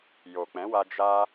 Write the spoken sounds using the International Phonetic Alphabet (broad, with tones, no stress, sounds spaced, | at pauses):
j o˨ k͡p ɛ̃˨˦ w a˧ d͡ʒ a˧